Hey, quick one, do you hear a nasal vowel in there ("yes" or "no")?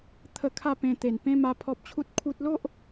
yes